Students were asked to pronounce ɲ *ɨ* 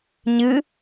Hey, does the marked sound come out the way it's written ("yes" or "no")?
yes